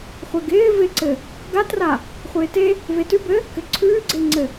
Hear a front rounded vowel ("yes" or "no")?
no